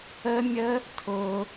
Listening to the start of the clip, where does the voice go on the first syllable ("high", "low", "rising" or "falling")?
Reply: high